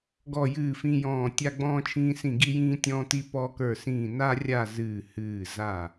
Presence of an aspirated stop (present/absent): present